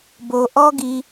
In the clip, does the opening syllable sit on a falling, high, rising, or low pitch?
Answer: low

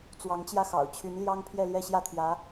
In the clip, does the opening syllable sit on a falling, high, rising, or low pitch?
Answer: rising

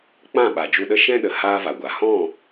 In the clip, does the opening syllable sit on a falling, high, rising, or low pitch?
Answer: falling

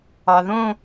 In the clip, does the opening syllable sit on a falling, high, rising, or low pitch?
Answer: low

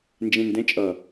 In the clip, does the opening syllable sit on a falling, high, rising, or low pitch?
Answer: low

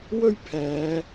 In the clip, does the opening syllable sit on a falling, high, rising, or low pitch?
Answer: high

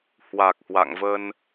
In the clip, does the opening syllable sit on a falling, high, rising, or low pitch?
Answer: low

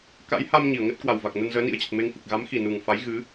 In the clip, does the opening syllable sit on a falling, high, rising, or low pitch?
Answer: rising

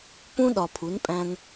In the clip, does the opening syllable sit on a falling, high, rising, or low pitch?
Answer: high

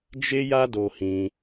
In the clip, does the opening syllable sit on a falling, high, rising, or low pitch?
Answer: high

